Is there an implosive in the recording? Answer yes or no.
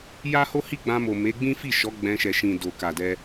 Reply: no